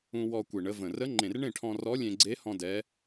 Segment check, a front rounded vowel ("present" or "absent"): absent